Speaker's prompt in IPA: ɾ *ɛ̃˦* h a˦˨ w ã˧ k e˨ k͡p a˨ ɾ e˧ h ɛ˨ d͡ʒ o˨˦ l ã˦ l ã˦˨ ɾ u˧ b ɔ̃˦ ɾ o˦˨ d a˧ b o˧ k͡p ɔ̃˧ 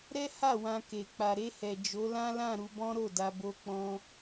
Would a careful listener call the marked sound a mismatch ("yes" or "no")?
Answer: yes